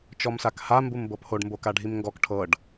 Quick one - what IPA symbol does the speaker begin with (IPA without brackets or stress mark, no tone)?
t͡ʃ